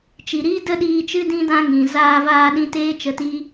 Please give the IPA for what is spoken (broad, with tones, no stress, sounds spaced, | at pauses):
t͡ʃ i˨ ɾ iː˦ d ə˦ ɗ iː˧ t͡ʃ ɨ˦ d ĩ˦ d ã˦ ŋ ĩ˨ z aː˧ v aː˧ ɗ ĩ˧ t eː˦ t͡ʃ ə˧ t iː˦